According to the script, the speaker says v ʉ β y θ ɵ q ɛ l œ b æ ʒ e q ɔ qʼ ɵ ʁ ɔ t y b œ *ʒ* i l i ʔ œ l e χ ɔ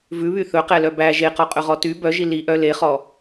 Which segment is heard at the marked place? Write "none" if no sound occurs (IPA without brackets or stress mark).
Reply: ʒ